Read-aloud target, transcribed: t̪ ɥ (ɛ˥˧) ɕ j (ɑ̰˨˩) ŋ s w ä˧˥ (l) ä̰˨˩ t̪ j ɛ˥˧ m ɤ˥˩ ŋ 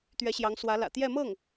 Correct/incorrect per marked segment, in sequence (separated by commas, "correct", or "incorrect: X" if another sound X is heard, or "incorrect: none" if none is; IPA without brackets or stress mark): incorrect: ɛ˧˥, incorrect: ɑ˧˥, correct